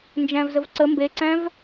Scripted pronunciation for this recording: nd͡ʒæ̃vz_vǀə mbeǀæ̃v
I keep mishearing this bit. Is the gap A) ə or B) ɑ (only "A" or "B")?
A